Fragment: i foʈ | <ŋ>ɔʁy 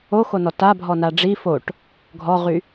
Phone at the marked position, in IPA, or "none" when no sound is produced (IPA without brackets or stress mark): ɡʱ